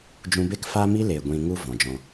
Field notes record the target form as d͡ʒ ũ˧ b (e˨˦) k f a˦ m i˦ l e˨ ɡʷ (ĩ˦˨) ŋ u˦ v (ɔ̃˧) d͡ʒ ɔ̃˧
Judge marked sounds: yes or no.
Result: no, no, no

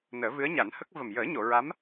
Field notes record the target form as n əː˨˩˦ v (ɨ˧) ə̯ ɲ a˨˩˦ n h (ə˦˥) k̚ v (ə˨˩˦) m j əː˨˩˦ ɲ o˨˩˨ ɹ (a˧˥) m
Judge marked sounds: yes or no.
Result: no, yes, no, yes

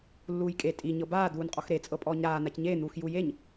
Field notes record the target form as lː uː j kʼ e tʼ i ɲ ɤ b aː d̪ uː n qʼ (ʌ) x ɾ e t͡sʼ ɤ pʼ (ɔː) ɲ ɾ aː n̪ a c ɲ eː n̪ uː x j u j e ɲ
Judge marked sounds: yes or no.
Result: no, yes

